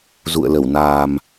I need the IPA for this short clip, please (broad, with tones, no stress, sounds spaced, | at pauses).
z ṵ˧˨ ə̯ l ə˧˩ w n aː˨˩ m